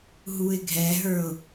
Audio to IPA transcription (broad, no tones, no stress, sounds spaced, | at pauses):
ɦ u ɪ̯ ɡʱ ɛ ɦ ə˞ ʊ̯